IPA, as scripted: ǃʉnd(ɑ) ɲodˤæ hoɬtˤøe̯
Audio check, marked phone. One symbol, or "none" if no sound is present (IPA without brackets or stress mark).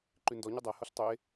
ɔ